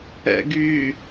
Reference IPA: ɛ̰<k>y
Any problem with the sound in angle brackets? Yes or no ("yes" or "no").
yes